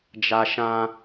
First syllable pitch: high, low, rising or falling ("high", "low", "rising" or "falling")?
high